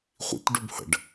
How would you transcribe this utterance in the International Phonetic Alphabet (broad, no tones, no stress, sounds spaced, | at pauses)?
χʷ ḭ t ɖ u b h ə̰ ɖ